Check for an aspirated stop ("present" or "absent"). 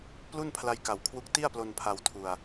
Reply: present